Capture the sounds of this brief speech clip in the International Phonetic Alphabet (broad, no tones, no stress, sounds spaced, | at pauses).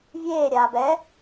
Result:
vʲ eː ɾʲ aː b ɛ